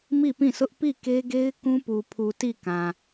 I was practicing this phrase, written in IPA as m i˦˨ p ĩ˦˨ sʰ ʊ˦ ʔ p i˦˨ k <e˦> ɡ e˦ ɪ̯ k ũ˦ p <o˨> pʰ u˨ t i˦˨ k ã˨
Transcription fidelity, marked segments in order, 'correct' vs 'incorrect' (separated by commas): correct, incorrect